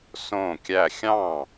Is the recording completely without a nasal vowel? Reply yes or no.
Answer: no